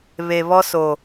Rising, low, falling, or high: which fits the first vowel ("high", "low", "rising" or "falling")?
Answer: low